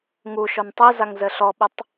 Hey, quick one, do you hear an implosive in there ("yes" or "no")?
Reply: yes